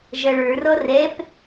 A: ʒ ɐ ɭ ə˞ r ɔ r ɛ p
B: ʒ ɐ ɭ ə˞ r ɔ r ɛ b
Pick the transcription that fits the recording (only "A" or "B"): A